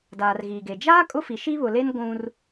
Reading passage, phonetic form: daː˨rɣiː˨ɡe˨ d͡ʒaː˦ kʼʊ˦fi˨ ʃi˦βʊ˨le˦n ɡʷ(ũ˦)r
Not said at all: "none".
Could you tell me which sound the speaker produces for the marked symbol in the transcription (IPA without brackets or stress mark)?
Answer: ũ˦